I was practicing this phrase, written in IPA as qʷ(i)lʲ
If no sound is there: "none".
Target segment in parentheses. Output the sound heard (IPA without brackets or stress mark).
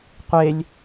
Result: e